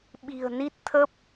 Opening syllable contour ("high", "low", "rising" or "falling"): low